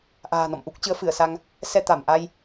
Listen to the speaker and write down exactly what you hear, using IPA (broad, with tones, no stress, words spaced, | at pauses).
ʔa̤ː˨˩nɔ̰˧˨mʔu˦˥k̚ t͡ɕɨ˨˦ə̯fɨ˧˩ə̯sa˧ŋ | sɛ˧t̪a˧˩m ʔa˧j